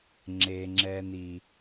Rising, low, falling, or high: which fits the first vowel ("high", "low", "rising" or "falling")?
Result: low